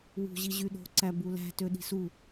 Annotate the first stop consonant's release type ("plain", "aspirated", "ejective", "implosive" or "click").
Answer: implosive